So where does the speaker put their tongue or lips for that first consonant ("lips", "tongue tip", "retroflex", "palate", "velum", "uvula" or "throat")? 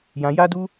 palate